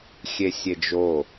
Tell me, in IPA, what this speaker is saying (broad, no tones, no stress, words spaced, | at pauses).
xʲesʲed͡ʒo